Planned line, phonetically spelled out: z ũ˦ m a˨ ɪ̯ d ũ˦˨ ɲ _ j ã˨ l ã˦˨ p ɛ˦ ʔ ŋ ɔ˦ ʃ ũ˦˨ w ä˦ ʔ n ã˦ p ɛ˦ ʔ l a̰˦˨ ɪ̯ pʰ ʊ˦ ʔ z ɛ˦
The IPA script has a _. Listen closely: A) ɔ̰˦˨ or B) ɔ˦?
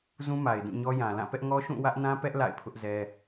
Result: B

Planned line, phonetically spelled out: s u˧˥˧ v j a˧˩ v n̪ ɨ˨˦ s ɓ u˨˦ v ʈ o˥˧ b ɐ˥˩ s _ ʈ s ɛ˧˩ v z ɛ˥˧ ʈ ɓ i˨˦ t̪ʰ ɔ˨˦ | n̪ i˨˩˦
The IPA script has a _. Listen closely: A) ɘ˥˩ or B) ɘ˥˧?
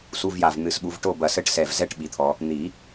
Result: B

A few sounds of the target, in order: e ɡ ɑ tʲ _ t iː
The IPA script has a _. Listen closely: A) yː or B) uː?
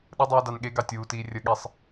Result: B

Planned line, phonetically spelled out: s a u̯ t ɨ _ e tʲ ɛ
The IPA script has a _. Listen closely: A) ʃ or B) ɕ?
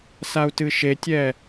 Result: A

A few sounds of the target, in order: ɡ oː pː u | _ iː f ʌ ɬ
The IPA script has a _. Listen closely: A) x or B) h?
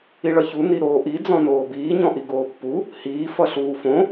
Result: B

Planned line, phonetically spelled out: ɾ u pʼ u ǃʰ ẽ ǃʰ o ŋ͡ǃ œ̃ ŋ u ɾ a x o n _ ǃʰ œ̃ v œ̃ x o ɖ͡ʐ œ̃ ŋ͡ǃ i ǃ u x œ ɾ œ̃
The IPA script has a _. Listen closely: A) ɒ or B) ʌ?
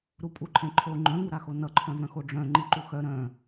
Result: B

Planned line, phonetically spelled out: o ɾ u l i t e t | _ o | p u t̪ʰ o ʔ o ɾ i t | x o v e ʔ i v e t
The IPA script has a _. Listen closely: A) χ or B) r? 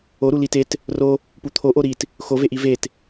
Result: B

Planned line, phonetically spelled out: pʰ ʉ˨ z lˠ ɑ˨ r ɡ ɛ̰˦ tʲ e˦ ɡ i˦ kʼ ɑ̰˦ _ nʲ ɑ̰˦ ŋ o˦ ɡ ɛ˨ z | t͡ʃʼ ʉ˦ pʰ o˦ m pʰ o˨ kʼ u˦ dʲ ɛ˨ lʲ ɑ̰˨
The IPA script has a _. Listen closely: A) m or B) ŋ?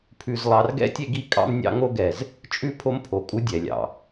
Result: A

